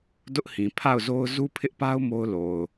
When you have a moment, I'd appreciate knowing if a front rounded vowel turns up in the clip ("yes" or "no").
no